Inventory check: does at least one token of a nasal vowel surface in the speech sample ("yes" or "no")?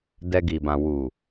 yes